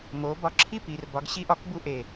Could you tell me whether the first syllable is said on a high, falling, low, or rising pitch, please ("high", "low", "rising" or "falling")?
rising